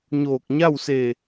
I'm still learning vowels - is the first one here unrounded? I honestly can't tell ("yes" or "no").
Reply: no